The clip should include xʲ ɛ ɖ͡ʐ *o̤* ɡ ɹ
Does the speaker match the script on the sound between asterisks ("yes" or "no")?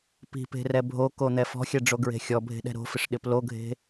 no